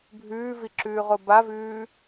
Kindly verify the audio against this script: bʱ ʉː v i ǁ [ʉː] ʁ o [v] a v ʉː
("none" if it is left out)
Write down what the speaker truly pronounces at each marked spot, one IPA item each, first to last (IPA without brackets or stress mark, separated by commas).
ʉː, b